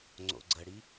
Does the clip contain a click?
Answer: yes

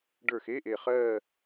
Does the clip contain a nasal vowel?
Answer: no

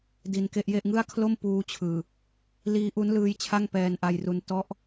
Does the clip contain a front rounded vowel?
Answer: no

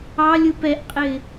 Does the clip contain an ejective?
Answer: yes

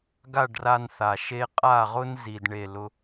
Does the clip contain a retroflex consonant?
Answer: yes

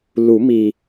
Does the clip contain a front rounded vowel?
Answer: no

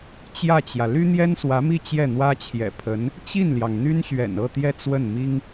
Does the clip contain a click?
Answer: no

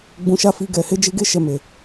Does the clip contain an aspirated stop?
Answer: no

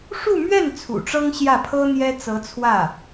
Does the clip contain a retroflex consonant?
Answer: yes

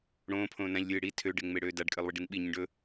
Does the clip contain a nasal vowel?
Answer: yes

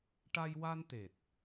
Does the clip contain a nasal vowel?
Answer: no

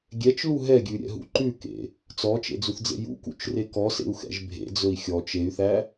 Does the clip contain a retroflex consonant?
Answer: no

